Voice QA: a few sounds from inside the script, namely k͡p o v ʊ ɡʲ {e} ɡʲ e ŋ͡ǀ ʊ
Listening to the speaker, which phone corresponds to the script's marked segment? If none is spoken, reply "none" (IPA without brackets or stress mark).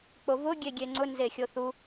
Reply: e